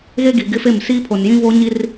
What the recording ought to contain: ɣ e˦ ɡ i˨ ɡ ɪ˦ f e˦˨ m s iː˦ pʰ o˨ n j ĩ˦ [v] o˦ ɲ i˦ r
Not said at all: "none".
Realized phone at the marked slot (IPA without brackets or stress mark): v